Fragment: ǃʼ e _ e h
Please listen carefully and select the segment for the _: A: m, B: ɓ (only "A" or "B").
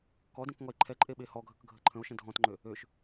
B